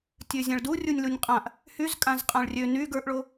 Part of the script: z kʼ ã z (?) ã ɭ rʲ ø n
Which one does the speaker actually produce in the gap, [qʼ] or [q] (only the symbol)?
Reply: qʼ